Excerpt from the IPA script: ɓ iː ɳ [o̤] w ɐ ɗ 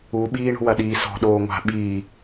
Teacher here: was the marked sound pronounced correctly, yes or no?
yes